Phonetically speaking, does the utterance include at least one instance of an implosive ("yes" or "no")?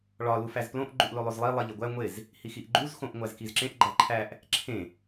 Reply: no